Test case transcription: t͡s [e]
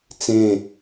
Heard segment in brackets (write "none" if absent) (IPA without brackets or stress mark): ẽ